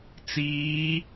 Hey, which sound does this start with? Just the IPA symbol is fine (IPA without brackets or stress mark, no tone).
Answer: t͡s